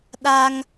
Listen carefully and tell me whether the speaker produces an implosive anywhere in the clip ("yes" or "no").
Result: yes